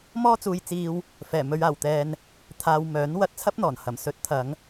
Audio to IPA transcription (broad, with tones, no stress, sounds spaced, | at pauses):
m ɔː˥ t͡s uː˧ j t͡s iː˧ w | f ɛː˨˩ m ɵ˨˧ ɥ aː˨˩ w t̪ ɛː˧ n | t̪ʰ aː˧ w m œː˨˥ n w ɐ˧ t̚ t͡sʰ ɐ˥ p̚ n̪ ɔː˨˩ n h ɐ˨˩ m s ɵ˨˥ t̚ t̪ʰ ɐ˨˧ ŋ